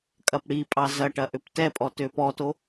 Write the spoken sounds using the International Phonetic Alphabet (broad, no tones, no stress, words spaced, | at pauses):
kʼɐpɽipʼɑ zɐʈɐ ʔøptɛpʼɔ tøpɔto